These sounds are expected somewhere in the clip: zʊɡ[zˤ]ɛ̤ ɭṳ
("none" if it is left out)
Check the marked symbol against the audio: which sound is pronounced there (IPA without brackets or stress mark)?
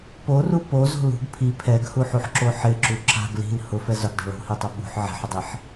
dˤ